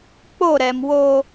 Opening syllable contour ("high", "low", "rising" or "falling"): falling